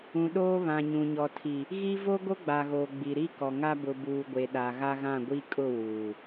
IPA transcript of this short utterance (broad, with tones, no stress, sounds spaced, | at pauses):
ũ˨ ɗ oː˦ β ã˨ ɲ ũ˨ ɲ ɔ˨ tʰ i˨ | ɣ i˦ v o˦ ɡ o˦ ɡ͡b a˨ ɣ oː˨ ɡ͡b i˨ ɾ i˦ k ɔ˨ ŋ a˦ b ʊ˨ b uː˨ ɡʷ e˨ ɗ a˨ ɣ a˦ ɣ ã˦˨ ɡʷ i˦ kʼ ʊ˦˨ w uː˨